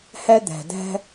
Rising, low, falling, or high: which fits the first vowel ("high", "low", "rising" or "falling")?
high